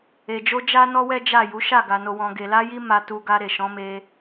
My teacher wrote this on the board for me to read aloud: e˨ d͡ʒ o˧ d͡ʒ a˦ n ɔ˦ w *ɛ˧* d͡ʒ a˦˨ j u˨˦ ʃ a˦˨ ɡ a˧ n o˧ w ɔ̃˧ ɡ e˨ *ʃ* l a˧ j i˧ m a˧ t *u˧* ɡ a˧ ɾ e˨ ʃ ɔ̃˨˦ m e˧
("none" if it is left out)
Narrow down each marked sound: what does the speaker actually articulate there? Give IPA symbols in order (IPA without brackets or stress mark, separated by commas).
ɛ˦, none, u˧